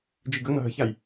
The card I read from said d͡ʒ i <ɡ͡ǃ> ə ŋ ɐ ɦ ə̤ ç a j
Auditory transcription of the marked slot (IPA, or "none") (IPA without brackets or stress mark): ɡ